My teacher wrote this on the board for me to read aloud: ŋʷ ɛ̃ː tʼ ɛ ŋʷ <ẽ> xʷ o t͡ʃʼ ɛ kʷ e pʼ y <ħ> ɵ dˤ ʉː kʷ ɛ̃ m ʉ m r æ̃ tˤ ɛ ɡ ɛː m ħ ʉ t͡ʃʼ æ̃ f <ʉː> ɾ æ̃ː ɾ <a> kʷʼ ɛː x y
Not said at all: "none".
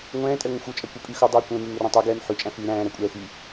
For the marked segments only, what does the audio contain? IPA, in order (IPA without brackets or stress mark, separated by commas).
ẽ, x, ʉː, æ